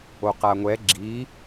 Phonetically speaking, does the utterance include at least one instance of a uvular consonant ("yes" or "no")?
yes